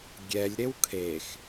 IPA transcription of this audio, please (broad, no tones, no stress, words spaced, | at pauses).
ɡʲɛlʲ ɾewkʰex